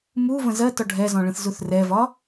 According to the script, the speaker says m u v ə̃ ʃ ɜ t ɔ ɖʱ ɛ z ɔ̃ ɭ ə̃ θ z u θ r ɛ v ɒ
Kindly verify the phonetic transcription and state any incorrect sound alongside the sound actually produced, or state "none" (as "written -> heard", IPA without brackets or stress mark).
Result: ʃ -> z